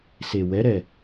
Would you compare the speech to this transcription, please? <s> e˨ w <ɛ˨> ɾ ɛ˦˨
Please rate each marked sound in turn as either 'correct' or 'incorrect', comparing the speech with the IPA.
correct, incorrect: ɛ˨˦

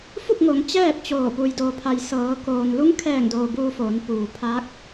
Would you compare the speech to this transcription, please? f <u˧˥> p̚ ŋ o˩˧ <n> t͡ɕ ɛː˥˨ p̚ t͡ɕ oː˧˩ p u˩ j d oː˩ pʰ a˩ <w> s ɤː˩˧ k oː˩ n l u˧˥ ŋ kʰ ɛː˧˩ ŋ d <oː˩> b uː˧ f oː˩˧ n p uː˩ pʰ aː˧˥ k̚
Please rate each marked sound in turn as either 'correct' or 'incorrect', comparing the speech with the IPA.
incorrect: u˥˨, incorrect: ŋ, incorrect: j, correct

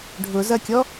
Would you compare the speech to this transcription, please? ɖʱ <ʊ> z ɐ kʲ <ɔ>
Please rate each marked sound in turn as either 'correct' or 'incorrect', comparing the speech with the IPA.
correct, correct

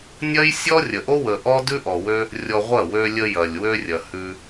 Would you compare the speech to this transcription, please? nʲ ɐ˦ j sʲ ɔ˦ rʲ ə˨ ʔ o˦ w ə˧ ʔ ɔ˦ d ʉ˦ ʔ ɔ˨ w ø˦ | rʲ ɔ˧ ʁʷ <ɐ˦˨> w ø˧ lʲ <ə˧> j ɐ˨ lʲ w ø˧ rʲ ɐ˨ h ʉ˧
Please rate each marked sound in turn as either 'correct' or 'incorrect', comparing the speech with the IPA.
correct, correct

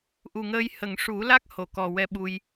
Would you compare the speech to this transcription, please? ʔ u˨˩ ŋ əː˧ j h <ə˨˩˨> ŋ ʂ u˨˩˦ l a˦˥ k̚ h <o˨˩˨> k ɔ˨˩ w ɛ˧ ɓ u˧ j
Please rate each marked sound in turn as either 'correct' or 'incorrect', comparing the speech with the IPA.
correct, correct

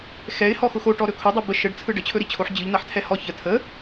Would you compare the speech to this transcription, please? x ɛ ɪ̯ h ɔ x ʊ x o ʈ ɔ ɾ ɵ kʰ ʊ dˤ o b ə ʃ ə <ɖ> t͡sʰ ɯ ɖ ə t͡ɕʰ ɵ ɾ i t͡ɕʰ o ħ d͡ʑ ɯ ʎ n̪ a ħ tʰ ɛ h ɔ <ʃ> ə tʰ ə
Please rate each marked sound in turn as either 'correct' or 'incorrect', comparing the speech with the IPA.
correct, incorrect: ç

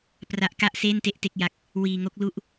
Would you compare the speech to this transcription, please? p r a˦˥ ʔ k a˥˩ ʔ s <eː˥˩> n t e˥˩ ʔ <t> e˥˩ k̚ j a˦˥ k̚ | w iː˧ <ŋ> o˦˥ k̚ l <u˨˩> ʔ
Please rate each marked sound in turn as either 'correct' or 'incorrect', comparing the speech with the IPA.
correct, correct, correct, incorrect: u˥˩

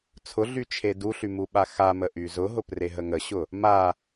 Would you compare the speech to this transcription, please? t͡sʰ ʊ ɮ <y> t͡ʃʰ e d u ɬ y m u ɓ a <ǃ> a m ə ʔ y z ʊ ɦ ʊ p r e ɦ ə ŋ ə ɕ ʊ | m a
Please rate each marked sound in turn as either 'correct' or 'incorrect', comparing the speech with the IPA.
correct, incorrect: x

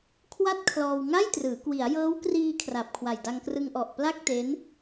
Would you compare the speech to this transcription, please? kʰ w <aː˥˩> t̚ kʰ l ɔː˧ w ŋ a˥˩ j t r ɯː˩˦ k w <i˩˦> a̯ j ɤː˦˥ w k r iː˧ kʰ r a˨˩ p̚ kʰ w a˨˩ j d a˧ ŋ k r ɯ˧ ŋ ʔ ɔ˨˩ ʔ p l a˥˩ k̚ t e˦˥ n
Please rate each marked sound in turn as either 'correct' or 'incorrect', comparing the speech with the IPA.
incorrect: a˥˩, correct

